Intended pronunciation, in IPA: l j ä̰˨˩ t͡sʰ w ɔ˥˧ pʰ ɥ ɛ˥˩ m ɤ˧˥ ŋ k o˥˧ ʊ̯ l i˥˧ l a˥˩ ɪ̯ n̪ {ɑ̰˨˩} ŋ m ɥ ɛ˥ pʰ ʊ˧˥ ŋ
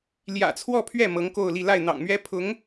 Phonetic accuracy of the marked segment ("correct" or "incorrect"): correct